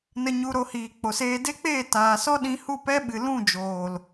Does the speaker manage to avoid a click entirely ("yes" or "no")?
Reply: yes